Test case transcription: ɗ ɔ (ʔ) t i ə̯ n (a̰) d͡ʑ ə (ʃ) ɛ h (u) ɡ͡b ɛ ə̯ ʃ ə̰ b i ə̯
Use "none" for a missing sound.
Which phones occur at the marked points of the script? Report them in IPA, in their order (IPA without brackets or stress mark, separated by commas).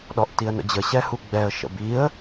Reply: ʔ, ə̰, ɕ, u